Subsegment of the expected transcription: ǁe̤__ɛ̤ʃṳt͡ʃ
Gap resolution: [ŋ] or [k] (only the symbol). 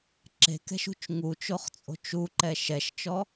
k